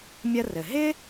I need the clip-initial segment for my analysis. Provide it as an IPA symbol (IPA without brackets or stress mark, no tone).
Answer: mʲ